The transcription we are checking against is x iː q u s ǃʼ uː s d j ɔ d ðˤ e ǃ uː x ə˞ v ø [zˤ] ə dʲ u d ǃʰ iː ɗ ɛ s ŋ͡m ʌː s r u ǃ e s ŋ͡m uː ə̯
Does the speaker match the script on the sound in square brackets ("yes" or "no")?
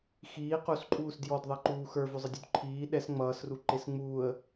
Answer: yes